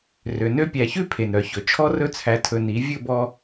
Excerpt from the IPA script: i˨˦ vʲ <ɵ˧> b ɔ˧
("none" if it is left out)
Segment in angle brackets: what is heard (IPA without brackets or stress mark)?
ɵ˦˨